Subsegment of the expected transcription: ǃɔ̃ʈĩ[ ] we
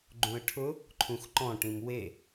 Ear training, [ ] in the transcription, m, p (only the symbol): m